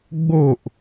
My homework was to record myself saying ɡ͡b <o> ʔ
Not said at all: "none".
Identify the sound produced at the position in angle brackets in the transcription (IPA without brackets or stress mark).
o